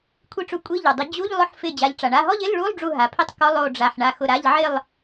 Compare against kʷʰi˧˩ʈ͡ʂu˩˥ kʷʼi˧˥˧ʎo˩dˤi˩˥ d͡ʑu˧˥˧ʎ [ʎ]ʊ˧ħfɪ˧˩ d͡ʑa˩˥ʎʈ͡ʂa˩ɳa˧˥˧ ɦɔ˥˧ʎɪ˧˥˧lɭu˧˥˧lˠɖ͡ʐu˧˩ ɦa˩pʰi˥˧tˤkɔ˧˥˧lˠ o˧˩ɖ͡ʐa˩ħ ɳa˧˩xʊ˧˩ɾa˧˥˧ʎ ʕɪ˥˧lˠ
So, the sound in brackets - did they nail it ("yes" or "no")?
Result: no